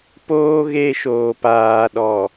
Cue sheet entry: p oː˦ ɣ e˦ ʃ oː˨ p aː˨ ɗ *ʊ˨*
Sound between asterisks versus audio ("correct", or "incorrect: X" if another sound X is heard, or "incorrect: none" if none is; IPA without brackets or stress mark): incorrect: ɔ˨